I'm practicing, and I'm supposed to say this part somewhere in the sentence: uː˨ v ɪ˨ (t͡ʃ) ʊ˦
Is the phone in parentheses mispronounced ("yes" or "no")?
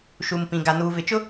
no